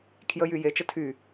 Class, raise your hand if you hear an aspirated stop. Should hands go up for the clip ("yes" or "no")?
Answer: yes